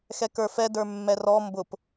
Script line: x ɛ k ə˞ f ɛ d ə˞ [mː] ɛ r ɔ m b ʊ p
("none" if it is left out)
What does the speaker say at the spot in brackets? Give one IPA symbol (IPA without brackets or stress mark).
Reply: mː